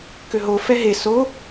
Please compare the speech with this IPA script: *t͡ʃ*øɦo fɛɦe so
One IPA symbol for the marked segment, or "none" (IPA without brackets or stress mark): k